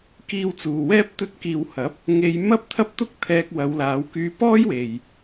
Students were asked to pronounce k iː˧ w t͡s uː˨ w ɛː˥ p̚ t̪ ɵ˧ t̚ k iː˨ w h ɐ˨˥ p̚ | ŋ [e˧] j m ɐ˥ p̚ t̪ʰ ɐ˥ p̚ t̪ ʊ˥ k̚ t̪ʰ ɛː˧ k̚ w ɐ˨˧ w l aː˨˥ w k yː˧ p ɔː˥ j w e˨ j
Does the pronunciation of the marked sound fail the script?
no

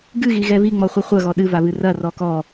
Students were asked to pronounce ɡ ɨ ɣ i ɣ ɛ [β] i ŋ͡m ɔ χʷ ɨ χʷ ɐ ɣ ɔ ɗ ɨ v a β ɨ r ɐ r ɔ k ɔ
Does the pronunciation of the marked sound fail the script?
no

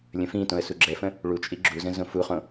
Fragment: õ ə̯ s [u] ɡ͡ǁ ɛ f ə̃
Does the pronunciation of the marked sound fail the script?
no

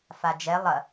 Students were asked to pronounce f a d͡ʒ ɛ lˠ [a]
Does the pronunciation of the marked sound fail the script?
yes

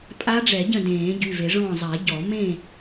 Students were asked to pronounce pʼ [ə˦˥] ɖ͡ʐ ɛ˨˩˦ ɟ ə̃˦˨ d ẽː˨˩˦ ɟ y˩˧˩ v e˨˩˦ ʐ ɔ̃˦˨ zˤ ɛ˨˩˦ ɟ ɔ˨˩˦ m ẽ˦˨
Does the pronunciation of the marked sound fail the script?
yes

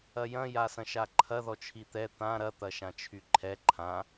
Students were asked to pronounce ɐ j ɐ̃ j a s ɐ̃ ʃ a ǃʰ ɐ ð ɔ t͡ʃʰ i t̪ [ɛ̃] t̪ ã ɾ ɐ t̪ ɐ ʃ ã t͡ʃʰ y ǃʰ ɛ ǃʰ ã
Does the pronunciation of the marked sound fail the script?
yes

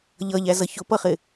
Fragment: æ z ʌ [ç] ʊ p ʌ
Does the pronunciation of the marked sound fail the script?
no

